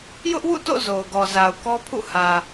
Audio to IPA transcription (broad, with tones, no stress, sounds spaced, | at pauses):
j ʊ˦ ʔ w ṵ˦˨ t o̰˦˨ z o˨ ʊ̯ ɡ ɔ˨ z a˨ ʊ̯ k ɔ˦ pʰ ṵ˦˨ h ä˨